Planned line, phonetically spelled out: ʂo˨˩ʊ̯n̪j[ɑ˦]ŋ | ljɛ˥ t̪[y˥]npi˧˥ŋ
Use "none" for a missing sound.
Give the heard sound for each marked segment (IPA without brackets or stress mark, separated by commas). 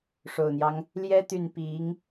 ɑ˦, y˥˩